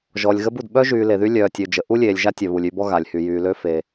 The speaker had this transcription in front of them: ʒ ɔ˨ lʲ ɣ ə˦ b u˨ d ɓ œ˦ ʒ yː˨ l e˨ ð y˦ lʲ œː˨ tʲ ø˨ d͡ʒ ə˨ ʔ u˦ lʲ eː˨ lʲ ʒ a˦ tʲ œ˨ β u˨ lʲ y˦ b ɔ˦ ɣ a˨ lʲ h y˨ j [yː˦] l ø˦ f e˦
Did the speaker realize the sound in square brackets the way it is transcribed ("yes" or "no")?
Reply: no